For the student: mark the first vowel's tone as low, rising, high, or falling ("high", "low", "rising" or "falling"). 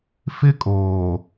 high